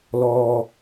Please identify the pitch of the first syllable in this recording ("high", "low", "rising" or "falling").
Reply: low